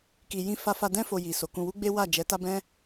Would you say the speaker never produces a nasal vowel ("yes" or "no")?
no